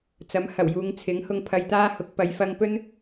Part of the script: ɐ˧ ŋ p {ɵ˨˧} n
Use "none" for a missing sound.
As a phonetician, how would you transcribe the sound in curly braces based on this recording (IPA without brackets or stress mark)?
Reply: ɵ˥